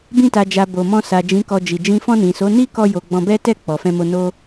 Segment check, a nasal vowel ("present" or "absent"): present